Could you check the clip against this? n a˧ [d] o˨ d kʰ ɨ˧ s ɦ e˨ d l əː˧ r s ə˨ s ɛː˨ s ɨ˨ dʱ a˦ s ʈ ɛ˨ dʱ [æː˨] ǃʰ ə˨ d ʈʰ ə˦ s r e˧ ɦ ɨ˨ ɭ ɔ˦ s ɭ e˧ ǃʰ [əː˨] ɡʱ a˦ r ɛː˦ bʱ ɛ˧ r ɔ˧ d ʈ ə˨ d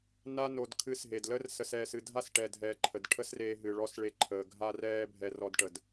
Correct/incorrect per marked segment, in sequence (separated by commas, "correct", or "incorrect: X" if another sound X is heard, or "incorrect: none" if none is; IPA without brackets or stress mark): incorrect: n, incorrect: ɛː˨, correct